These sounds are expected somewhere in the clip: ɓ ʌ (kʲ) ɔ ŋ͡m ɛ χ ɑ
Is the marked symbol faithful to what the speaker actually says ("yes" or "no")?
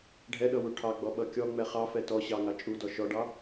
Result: yes